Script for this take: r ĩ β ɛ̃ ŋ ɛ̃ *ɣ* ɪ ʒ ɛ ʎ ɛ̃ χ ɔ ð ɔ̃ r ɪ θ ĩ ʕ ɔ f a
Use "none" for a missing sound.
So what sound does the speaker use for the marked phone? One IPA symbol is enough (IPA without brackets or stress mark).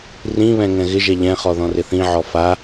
ɣ